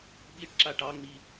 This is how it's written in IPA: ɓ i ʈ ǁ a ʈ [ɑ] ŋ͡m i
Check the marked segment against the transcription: correct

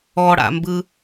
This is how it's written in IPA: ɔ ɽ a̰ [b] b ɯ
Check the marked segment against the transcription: incorrect: m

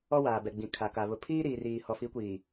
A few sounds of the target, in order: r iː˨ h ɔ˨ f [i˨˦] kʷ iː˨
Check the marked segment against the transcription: correct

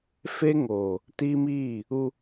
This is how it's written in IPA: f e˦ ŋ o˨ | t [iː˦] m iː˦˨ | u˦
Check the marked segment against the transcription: incorrect: i˦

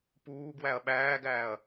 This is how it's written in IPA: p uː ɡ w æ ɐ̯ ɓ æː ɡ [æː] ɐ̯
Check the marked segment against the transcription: correct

